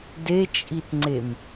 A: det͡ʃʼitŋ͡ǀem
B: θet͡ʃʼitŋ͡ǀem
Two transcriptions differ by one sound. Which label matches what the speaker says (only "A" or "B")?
A